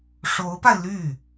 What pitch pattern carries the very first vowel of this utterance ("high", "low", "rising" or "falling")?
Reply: rising